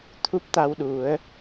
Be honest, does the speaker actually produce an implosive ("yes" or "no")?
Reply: yes